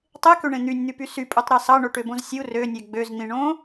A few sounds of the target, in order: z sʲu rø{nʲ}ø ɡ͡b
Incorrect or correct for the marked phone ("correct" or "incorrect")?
correct